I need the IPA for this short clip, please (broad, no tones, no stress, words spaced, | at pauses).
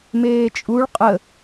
meːt͡ʃʼuɭ qʼə